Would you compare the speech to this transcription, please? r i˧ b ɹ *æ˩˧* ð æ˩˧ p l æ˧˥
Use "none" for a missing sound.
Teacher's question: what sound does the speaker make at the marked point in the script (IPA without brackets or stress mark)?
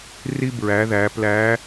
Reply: æ˩˧